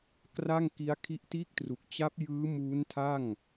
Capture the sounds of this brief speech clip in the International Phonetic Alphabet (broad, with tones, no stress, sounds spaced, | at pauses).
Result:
k r a˥˩ ŋ k i˦˥ a̯ kʰ i˦˥ ʔ t iː˥˩ k̚ t r u˨˩ k̚ t͡ɕ a˦˥ p̚ j ɯː˦˥ m uː˦˥ n tʰ a˥˩ ŋ